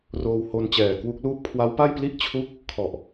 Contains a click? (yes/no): no